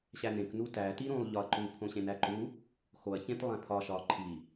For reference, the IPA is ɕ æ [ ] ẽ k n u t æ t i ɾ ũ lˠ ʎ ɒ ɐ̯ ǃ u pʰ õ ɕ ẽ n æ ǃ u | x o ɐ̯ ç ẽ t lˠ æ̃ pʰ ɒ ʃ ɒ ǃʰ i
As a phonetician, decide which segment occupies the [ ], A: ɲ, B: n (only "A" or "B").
B